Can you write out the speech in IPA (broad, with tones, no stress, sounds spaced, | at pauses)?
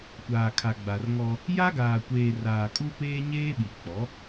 kʷ aː˨ kʰ a˨ ɡ͡b a˨ r ŋ ɔ˦ | j a˦ ɡ aː˨ kʷ eː˨ r aː˨ kʼ u˦ p eː˦ ɲ eː˦ ɓ i˨ k͡p ɔ˨˦